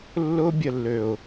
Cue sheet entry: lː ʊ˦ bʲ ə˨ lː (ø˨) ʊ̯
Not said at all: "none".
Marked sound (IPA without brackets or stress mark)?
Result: ø˨